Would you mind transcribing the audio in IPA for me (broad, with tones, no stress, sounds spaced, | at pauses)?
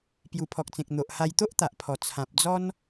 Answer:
p j u˨˩ pʰ ɔ˨ k̚ t͡s ẽ˨ k̚ n̪ o˨ ʔ h a˧ j t̪ o˦ ʔ t̪ a˨ ʔ pʰ ɔ˨˩ t͡sʰ ã˨ p̚ d͡z ɔ˦ n